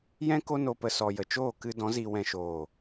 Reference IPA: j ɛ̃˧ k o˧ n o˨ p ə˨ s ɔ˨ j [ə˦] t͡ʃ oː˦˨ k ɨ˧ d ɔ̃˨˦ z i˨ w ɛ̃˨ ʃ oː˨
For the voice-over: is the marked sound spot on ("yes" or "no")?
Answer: no